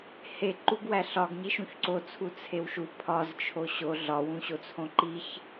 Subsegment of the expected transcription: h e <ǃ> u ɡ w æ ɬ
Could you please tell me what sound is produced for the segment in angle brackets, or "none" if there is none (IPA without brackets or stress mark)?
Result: ǃ